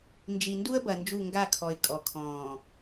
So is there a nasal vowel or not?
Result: yes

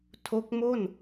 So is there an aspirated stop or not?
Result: yes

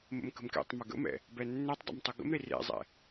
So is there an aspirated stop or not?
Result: no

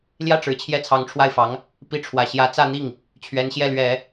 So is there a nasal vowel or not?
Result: no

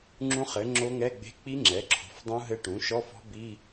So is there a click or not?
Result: yes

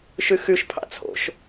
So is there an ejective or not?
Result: no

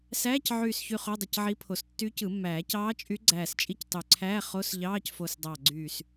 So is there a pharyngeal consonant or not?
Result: yes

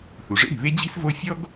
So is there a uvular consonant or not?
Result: no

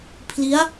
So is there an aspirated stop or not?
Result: yes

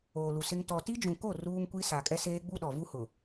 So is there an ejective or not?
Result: yes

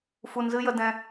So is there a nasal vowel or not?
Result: yes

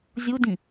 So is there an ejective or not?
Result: no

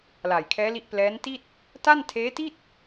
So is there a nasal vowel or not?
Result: no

